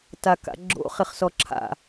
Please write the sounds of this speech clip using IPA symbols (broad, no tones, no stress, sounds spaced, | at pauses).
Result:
t a k a̰ ɡ͡ǁ o̰ χ ɪ χ s ɔ ǁʰ a̰